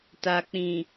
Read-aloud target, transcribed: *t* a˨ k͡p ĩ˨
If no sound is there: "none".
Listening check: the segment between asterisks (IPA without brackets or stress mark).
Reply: t